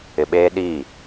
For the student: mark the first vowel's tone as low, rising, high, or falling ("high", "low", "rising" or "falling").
low